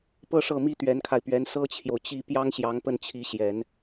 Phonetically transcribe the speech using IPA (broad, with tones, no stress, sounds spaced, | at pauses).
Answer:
p ɤ˥ ʂ ɤ˥˩ m i˥ t̪ ɥ ɛ˧˥ n kʰ a˧ ɪ̯ p ɥ ɛ˧˥ n s ɤ˥ t͡ɕʰ j o˨ ʊ̯ t͡ɕ i˥˩ p j ɑ˥ ŋ ɕ j ɑ˧˥ ŋ p ə˥˩ n t͡ɕʰ i˧˥ ɕ j ɛ˨˩˦ n